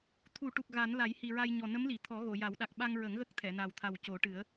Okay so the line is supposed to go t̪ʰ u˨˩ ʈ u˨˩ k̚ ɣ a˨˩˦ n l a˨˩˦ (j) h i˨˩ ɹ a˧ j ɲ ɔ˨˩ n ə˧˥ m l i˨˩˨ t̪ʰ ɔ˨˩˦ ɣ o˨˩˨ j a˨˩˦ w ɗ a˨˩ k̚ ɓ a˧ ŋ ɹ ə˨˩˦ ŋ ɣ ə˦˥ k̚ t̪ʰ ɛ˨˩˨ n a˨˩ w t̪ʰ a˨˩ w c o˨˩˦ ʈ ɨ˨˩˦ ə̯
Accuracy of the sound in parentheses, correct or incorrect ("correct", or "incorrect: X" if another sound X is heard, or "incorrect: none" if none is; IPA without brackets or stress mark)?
correct